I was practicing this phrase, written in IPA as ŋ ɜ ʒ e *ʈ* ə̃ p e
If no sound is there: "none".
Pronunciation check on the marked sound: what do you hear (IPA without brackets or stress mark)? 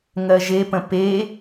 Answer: p